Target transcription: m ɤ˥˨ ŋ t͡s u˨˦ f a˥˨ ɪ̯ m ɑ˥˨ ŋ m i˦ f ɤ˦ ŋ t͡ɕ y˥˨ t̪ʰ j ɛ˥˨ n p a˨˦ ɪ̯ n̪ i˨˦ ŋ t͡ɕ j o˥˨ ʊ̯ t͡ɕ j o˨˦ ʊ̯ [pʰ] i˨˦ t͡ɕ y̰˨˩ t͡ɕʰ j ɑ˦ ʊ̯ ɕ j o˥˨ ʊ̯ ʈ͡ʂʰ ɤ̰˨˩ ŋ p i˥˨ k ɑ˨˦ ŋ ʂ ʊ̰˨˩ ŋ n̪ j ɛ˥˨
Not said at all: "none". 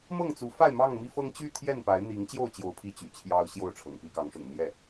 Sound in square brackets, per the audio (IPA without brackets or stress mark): pʰ